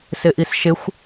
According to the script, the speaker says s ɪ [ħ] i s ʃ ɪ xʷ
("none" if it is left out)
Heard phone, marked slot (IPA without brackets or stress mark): ʔ